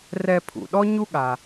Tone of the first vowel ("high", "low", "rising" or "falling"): low